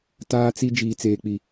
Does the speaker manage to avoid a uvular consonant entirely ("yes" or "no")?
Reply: yes